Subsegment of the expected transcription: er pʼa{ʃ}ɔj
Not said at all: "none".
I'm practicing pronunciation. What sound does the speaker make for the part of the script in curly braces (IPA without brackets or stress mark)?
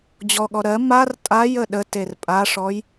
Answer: ʂ